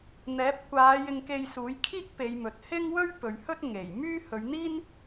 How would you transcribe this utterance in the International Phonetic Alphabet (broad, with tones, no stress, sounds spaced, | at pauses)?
n̪ ɛː˨˥ p̚ kʷ aː˨˧ j ɪ˧ ŋ k e˧ j s uː˨˥ j kʰ iː˥ k̚ p e˨˧ j m ɵ˨ t̚ h ɪ˥ ŋ w ɵ˥ ɥ p ɵ˨ ɥ h ɵ˥ t̚ ŋ e˨˩ j m yː˥ h ɵ˨˧ ɥ n̪ iː˥ n